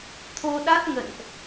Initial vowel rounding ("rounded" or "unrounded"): rounded